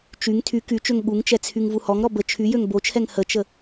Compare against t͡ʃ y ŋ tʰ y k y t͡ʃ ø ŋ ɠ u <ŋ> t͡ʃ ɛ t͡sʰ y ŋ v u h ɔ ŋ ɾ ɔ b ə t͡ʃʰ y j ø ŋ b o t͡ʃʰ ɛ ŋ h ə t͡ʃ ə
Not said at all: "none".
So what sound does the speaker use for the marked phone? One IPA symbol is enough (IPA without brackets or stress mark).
ŋ